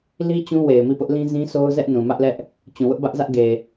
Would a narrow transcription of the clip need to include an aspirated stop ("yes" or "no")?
no